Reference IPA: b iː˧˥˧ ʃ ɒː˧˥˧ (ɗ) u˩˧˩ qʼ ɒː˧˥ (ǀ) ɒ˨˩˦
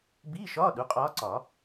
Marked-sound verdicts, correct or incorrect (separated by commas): correct, correct